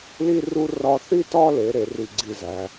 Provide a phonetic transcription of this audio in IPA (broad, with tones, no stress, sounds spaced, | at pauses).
l i˧ r u˧ r ɒ˧ θ i˥˧ t ɒ˥˧ l e˩˧ ɾ e˩˧ r i˧˩ ɡ͡ǀ i˧˩ z æ˩˧